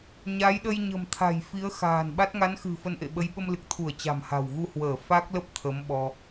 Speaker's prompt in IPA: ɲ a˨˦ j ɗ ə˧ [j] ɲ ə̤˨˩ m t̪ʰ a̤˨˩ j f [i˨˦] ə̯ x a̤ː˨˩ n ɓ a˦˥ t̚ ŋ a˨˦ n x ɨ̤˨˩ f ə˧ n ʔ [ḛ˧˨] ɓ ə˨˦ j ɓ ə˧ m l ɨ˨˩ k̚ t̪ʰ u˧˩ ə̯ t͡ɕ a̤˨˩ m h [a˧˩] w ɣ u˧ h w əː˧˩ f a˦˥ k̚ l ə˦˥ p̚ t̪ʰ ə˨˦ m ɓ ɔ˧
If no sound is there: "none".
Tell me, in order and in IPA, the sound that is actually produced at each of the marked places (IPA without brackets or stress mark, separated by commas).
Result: j, i˨˦, ḛ˧˨, a̤˨˩